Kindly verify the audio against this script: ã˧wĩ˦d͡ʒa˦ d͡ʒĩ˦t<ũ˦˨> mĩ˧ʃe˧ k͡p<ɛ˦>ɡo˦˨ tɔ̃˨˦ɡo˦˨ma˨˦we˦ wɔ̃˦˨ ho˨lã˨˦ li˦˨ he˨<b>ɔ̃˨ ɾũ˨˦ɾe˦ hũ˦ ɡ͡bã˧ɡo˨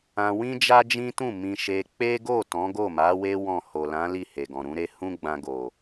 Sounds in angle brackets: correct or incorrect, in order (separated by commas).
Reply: correct, incorrect, incorrect